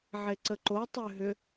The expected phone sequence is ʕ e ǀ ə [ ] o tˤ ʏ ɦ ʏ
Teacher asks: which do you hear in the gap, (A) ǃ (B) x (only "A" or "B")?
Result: A